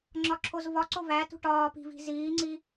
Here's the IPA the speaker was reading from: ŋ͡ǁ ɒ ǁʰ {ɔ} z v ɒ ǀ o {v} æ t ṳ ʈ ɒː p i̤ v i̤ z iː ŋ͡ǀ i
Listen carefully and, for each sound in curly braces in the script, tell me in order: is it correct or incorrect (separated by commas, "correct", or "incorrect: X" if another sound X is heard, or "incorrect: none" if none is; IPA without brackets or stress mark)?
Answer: incorrect: o, correct